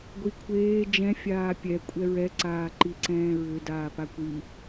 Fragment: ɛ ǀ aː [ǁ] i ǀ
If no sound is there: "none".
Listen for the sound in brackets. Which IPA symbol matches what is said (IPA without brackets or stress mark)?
ǃ